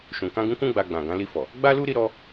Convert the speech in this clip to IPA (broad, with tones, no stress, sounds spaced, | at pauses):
ʃ ũ˨ k ã˧ ɡ ũ˧ k ũ˦ ɡ͡b a˧ ɡ͡b ã˨ ɡ ã˨˦ l i˧ f ɔ˨ | ɡ͡b a˦ l u˦ ɾ i˧ ɾ ɔ˧